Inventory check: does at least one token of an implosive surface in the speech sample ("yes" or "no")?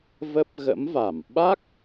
yes